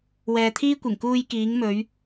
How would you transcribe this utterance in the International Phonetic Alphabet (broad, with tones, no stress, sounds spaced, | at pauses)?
w ɛː˨ t̪ʰ iː˥ kʷ ɪ˨˩ ŋ k uː˧ j k iː˨˧ ŋ m ɵ˨˧ ɥ